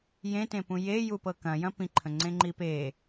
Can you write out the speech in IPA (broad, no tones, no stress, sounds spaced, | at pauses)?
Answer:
j ẽ t ẽ p ũ j e j u p ɤ k ɐ̃ j ɐ̃ p ĩ ǃʰ ə̃ ŋ͡ǀ ẽ ŋ͡ǃ i p e